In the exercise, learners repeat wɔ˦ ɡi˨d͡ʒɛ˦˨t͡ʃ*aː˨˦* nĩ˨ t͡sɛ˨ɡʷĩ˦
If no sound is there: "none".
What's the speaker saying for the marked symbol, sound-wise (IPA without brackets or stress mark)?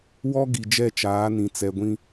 aː˨˦